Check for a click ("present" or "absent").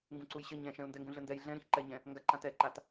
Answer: present